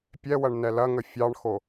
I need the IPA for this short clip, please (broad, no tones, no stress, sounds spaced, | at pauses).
pʲ ɛ w ɐ ɳ n ɛ l ɐ ŋ ə fʲ ɑ ɳ x o